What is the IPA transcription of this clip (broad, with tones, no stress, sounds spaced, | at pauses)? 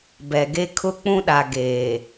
b ɛ˨ ɡ e˦ kʰ ʊ˦ k͡p ũ˦ ɗ a˨ ɡ eː˨